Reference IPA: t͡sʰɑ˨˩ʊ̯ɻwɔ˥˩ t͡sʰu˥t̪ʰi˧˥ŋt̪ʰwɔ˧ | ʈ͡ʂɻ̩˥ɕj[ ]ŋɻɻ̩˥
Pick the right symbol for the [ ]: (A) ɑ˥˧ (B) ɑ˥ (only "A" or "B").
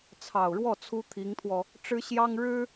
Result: B